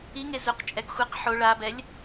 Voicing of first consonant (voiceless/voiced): voiced